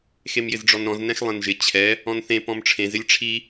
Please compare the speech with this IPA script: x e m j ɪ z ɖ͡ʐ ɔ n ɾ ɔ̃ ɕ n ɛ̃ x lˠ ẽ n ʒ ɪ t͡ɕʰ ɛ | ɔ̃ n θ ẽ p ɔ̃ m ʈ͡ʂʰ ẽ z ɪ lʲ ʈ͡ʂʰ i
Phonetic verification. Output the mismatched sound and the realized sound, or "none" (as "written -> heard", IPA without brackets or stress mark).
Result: ɕ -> z